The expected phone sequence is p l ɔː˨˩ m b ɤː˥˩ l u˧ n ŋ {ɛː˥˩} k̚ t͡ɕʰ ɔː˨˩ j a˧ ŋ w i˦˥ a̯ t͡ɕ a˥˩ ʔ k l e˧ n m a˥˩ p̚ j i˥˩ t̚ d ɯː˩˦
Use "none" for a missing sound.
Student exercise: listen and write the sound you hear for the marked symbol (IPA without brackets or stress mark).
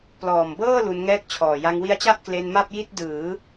ɛː˥˩